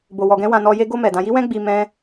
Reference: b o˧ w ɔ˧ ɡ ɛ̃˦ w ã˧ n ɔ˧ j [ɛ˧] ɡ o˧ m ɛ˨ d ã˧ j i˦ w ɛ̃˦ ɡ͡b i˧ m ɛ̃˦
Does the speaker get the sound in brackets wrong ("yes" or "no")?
yes